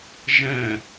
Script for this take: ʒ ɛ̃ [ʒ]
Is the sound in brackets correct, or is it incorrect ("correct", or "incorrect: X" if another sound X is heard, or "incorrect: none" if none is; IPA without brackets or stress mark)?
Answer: incorrect: none